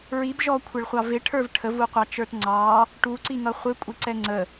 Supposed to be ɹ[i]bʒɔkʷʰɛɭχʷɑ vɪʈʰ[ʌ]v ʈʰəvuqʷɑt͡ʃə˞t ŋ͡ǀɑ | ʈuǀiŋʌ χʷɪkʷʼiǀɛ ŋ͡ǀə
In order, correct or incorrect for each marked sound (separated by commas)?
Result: correct, incorrect